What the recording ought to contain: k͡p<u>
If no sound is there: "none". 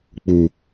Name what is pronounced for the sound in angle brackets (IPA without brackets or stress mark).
u